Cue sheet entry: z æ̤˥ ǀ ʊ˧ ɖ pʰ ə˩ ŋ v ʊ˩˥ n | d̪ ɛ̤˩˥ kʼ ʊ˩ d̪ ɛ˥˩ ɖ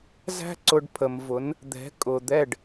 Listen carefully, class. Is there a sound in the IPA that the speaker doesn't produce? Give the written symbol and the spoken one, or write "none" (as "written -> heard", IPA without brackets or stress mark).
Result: ŋ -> m